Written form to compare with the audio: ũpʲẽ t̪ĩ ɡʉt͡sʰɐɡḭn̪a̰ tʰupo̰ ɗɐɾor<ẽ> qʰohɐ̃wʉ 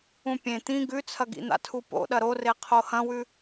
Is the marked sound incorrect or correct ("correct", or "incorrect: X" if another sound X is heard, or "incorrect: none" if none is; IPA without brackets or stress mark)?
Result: incorrect: e